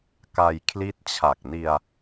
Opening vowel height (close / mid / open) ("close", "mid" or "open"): open